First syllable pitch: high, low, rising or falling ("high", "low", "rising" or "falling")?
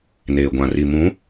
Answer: low